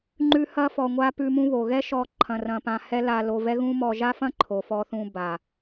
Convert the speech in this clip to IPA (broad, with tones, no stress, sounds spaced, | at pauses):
ŋ͡ǃ ʉ˦ h ɐ˦ f ɔ˧ ŋʷ a˦ p ʉ˧ m ũ˦ β o˨ ɣ ɛ˦ ʃ ɔ˧ ǃʰ ɐ̃˧ r ɐ̃˧ p ã˧ h ɛ˦ l a˧ l o˧ v ɛ˦ ɣ ũ˦ m ɔ˧ ʒ a˦ f ɐ̃˦ ǃʰ o˨ f ɔ˧ θ ũ˧ b a˨